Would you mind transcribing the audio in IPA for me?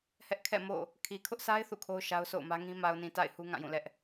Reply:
hɛ˦ʔkʰɛ̰˦˨mo̰˦˨ | kʰi˨kʰʊ˦ʔsʰa˦ɪ̯ θṵ˦˨kʰo˦ʊ̯ʃa˦ʊ̯ so̰˦˨ʊ̯mä˦ŋĩ˦ ma˨ʊ̯nĩ˨ ta̰˦˨ɪ̯ hu˦ŋã˦˨jũ˦˨lɛ˦ʔ

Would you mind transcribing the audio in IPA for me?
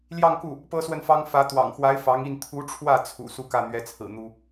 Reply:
ljɑ˥˧ŋku˥˩ | pɤ˥swə˥˩nfɑ˥ŋ fä˧˥ t̪wɑ̰˨˩ŋxwa˧˥ɪ̯ fɑ˧˥ŋ i˥˩n t̪ʰu˧˥ʈ͡ʂʰwä˥˩ t͡sʰṵ˨˩ su˥˧kä˥˩n̪ɥɛ˧˥t͡sʰɹ̩˨˩ n̪u˥

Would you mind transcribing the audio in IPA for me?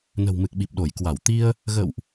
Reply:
nə̤˨˩wmɨ˨˩k̚ɓi˨˩p̚ɗo˧˩j kwa˧˩wt̪i˧ə̯ | ɣə̰˧˨wʔ

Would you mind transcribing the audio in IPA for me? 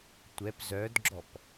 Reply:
tʷɛp zœdɡ͡ǁɔp

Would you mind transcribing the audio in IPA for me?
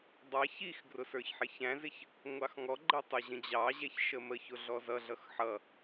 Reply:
dˤɑ çixɡrʊ sə˞çħɪçæ̃zɪç | ŋʷɑxŋɔɡ͡ǃə tˤʊʑə̃d͡ʑɑʑɛç ʃəməçʊ ɮɔzʌɮʌx ħʌ

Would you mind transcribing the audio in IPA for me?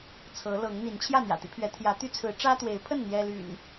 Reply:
t͡sʰɤ˨˦lɤ˨˦ŋ n̪i˨˦n t͡ɕʰjä˥˨n̪jä̰˨˩t̪i˦pʰɥɛ˨˦ t̪ʰjä˨˦t̪y˦t͡sʰɹ̩˨˦ ʈ͡ʂä˦t̪we˨˦ɪ̯pʰə˥˨n n̪jɛ˦ly̰˨˩n

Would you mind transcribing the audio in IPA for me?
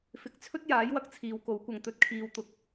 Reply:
fɪ˨˥k̚t͡sʰɵ˥t̚jaː˨˥jwɐ˧k̚ t͡sʰiː˨wko˨˥wkʷɐ˨ŋ t̪ɵ˨˥t̚kʰiː˨˧wt̪ʊ˨k̚

